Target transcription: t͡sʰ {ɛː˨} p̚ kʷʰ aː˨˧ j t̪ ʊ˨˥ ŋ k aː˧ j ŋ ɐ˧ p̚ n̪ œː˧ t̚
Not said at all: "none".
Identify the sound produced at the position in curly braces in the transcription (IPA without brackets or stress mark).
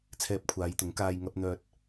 ɛː˧